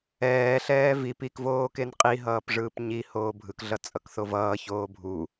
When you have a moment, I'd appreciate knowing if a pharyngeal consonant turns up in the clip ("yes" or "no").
no